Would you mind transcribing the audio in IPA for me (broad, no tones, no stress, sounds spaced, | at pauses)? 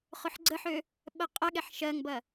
χ ʊ ħ ɡ͡ǀ ə ħ ø | ɓ ɜ qʼ ɐ ɠ ɛ ħ ʃ ɜ ŋ b ɐ